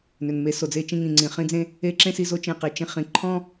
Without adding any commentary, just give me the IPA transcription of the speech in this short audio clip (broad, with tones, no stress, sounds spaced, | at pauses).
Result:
n ʏ˨ n m e˧ s o˨ d͡z e˦ t͡ʃ ĩ˧ ŋ ĩ˨ ŋ͡ǀ ĩ˨ χ ĩ˧ d͡z ẽ˧ | e˦ ǁ ẽ˦ s i˧ z o˦ t͡ʃ ẽ˧ q e˨ t͡ʃ ĩ˧ χ ĩ˨ ǃʰ ɔ̃˦